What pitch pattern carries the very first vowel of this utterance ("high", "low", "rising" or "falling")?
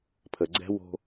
low